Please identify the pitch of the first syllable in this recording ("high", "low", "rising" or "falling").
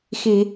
low